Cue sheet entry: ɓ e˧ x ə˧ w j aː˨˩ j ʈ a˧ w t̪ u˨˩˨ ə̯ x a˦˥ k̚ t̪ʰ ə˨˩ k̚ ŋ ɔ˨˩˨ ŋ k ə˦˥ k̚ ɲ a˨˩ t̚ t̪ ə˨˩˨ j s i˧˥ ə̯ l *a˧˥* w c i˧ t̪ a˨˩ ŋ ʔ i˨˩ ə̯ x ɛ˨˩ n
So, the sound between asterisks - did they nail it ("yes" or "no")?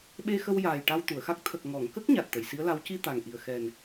yes